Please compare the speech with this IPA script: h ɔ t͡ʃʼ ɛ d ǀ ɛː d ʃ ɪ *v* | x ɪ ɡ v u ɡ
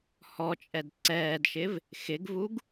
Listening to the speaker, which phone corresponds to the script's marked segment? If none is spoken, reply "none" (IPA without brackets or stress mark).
v